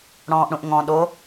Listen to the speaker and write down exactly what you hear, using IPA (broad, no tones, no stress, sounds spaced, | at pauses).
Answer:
ɽ ɔ̃ː ʔ ɽ ũ ʔ ŋ ɔ̃ ɗ o